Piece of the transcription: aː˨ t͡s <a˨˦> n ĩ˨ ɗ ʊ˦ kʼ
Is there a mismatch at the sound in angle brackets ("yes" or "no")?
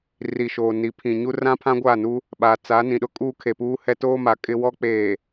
no